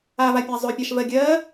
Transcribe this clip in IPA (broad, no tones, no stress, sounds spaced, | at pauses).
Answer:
a v a pʲ a zˤ ø pʲ ɑ ʃ v ɜ ɡʲ ɜ